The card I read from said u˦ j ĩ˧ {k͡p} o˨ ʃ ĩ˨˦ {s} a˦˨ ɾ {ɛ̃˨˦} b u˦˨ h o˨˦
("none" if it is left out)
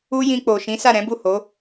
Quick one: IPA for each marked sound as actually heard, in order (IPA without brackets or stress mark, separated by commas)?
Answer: k͡p, s, ɛ̃˨˦